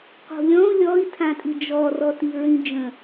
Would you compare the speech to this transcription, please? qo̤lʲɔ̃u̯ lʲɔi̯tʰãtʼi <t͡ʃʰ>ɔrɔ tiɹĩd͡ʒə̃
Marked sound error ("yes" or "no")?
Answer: yes